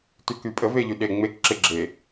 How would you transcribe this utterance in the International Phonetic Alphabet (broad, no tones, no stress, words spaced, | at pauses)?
tykypʼə veʎyɗe ŋ͡mek ǁɪ ɡ͡ǁe